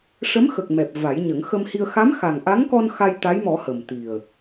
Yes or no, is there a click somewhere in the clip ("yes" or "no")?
no